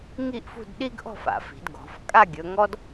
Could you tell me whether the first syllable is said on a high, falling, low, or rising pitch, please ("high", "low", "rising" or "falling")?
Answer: falling